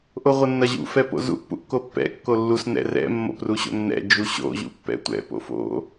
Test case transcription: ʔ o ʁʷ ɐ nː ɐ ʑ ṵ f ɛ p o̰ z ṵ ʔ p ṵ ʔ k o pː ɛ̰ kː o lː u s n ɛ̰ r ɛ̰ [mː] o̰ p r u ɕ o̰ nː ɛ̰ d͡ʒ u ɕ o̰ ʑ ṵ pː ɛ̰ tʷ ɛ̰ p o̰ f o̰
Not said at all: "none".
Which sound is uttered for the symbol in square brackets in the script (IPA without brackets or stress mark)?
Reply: mː